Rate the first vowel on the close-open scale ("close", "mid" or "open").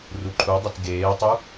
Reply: close